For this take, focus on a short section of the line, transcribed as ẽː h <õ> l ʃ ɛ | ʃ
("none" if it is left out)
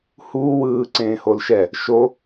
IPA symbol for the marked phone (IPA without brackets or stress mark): o